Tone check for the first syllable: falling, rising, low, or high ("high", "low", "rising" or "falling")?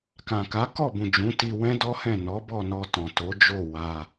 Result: low